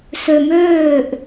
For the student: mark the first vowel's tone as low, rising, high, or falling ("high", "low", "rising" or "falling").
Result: low